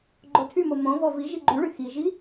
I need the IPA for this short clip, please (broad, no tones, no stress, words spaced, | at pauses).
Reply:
ɡ͡ǃotʰymo mõvɔ vi ʒiɡ͡ǃyɭy xiʒi